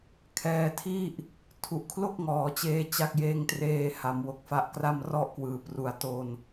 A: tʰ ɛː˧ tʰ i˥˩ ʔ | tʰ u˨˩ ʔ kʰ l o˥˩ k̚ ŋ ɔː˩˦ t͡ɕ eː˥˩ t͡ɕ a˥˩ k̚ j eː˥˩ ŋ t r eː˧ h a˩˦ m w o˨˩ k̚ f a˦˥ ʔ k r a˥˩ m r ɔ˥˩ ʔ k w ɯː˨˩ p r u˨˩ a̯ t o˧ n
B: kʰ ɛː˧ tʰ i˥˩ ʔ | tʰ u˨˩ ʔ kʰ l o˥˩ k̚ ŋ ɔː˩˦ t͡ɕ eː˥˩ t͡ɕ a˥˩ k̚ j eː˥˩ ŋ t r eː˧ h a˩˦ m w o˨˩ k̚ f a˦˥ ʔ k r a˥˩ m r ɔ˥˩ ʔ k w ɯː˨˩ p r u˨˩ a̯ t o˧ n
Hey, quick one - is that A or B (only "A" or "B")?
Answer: B